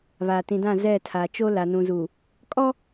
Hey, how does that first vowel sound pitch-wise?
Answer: low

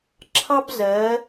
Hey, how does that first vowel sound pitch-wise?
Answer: high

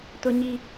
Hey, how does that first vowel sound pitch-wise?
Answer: high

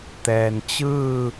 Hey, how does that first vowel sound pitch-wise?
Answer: low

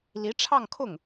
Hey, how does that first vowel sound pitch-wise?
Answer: rising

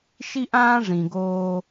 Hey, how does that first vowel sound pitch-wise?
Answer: high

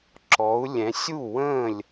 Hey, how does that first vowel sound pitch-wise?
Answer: rising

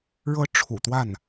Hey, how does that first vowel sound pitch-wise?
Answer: high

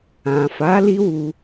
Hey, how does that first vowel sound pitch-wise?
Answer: low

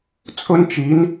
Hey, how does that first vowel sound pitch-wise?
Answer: high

